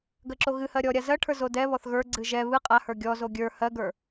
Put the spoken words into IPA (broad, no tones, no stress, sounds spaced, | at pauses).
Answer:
ɡ ɜ ǁ o ɣ ɨ h ɜ ɾʲ ɔ ɾʲ a z ɜ ʈʰ ə˞ z o d ɛ β ɔ θ ɣ ə˞ ɡ͡ǀ ɨ ʒ ɛ β ɨ qʼ a h ə˞ ɡʲ ɔ z o ɡʲ ə˞ h ɜ ɡ ə˞